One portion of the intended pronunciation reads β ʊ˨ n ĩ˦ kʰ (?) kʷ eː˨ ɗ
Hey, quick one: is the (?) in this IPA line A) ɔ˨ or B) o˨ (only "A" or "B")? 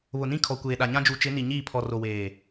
A